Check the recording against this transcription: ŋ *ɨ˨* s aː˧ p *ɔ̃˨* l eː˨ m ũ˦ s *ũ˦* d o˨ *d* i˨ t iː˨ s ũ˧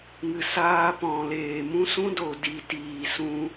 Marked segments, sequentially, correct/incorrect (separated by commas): correct, correct, correct, correct